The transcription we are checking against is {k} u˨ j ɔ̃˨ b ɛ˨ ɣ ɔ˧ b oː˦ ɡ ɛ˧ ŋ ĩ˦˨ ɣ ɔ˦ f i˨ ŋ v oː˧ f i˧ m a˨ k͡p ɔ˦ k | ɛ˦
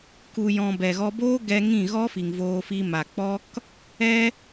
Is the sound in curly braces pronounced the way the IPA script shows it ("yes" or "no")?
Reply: yes